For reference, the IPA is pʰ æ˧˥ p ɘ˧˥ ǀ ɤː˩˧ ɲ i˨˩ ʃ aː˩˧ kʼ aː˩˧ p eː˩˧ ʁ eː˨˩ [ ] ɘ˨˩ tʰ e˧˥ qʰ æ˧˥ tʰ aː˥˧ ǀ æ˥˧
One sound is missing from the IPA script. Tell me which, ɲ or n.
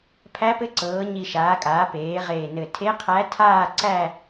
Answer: n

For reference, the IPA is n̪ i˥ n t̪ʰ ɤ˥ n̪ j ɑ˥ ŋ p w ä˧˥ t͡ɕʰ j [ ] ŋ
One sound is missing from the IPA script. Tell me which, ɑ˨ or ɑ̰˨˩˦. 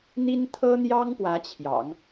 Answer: ɑ̰˨˩˦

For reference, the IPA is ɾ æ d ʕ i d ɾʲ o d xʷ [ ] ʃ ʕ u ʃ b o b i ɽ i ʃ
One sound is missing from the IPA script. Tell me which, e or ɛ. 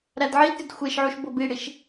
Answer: e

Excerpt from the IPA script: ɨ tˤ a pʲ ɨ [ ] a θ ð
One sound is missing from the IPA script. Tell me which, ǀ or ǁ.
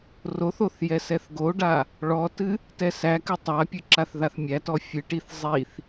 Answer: ǁ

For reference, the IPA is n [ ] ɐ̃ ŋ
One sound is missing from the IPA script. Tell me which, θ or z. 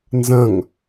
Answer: z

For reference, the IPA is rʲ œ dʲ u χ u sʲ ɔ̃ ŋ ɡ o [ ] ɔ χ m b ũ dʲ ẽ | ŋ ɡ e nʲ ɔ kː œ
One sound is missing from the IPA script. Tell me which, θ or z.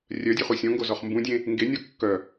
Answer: z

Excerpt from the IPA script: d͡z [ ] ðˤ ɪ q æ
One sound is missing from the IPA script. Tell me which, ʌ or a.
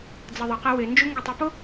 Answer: ʌ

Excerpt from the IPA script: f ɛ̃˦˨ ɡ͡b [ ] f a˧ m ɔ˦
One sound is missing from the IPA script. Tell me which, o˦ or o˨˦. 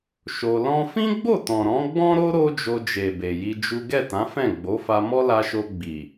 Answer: o˨˦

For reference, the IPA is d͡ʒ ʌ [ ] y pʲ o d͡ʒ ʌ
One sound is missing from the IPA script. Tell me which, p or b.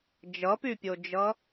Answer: p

